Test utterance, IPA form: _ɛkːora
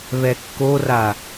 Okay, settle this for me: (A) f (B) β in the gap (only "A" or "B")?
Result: B